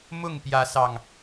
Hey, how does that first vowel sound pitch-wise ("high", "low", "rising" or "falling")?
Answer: falling